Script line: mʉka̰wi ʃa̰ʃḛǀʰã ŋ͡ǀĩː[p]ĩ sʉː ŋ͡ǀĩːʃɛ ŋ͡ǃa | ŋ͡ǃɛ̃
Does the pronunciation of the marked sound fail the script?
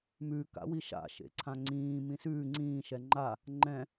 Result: yes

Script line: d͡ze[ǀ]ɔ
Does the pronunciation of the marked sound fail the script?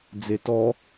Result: yes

